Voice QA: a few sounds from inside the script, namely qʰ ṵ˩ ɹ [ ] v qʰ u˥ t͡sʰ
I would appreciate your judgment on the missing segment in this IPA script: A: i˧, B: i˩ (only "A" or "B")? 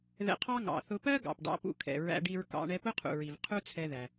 B